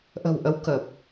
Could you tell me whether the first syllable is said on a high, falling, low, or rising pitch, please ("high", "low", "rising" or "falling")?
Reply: low